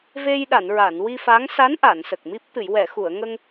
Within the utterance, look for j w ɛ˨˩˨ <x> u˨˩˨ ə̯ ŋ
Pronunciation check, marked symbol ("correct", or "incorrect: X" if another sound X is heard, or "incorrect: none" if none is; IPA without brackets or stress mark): correct